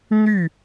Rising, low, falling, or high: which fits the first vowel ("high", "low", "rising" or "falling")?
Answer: falling